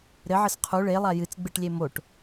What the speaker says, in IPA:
ɾ ɘ ʕ ɘ s qʰ u ɭ e lˠ a j ɨ t͡s ɡ͡b ɨ ʈ lʲ e m o ʈ

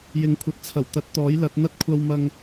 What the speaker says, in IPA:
j ɪ˨˥ ŋ kʷʰ ɐ˨˥ t̚ t͡sʰ ɐ˨˩ w t̪ ɐ˧ t̚ t̪ ɔː˨˥ j l ɐ˨˥ t̚ n̪ ɐ˥ t̚ kʷʰ ɐ˧ w m ɐ˧ ŋ

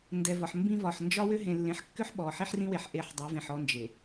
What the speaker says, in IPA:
n d ɛ˨ v ɒ˨ ħ m b ĩ˦ v ɒ˨ ħ n d͡ʒ ɒ˦ w ʏ˦ ɦ ẽ˨ lː ẽ˨˦ ħ kː ʏ˦ ħ ɓ ɔ˨ ħ i˦ ħ r ĩ˦ w e˨ ħ ʔ e˦˨ ħ dˤ i˨˦ v ẽ˨ ħ ɔ˦ n d͡ʒ e˨

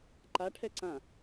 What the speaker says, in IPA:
ǃ a ʈʰ ɛ ǀ ã

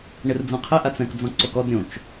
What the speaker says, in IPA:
ɳ ɪ r d͡z ũ qʰ ɪ ʔ a t͡s ɛ̃ k d͡z ɔ̃ ǀ o k ɔ d ɾʲ õ t͡ʃ

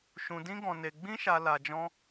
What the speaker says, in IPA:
ʃ ũ˧ d ĩ˦ ɡ ɔ̃˧ n e˧ ɡ͡b ĩ˦ ʃ a˧ l a˧ d͡ʒ ɔ̃˦

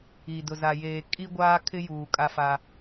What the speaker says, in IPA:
i˨ d ʊ˨ z a˨ j eː˨ kʼ i˦ ɡʷ aː˦ kʰ ɪ˦ j uː˨ kʼ a˦ f a˦

